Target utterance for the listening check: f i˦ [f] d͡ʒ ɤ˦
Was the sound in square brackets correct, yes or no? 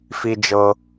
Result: no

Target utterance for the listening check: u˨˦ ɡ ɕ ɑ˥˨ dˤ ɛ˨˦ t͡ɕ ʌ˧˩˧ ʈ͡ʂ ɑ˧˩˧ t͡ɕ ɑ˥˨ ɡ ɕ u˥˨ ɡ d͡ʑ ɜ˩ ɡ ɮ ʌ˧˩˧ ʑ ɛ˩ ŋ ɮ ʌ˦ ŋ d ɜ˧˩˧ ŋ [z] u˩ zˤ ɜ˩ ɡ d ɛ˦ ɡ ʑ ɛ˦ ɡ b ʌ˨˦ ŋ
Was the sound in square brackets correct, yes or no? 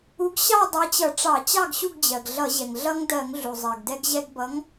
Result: no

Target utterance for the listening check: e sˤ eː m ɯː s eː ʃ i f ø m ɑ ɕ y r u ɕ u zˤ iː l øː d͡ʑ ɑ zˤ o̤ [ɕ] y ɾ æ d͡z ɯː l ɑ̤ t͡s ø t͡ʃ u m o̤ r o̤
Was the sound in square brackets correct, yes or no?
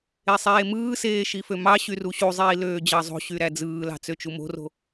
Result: yes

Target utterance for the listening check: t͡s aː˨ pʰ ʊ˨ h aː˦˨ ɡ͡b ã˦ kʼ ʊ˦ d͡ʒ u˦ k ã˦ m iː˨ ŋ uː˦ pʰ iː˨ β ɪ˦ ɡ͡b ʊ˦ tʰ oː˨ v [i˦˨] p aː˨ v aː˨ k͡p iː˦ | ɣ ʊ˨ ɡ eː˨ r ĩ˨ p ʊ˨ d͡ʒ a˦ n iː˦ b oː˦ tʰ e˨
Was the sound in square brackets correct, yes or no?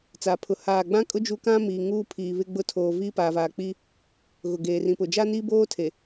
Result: no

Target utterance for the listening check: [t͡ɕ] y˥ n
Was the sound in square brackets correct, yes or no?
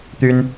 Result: no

